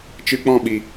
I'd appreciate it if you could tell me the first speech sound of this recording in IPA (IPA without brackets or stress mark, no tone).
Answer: t͡ʃ